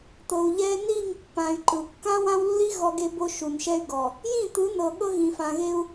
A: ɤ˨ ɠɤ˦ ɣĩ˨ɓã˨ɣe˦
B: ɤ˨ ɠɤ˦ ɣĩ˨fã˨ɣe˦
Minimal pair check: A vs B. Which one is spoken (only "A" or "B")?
B